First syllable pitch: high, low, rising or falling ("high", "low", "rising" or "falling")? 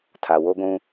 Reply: low